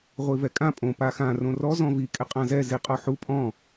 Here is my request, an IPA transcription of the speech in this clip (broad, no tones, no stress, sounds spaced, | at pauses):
ʁʷ i v ɛ kʼ ã pʼ õ p a x ã r õ r ɔ z ɔ̃ v i kʼ ɪ qʼ ã z ɛ z i qʼ ɔ ħ u pʼ ɔ̃